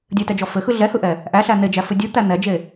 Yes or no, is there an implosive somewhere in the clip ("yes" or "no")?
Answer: no